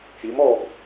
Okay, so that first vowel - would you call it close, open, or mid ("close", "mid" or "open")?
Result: close